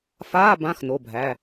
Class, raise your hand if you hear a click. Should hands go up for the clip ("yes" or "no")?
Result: no